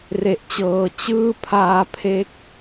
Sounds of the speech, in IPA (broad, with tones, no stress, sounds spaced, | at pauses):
r e˨˩ ʔ t͡ɕ ɤː˨˩ t͡ɕ ɯː˥˩ pʰ aː˧ pʰ e˦˥ k̚